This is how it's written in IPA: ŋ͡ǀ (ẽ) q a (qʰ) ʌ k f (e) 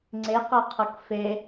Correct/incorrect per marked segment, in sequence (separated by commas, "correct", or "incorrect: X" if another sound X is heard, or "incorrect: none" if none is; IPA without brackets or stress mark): incorrect: e, correct, correct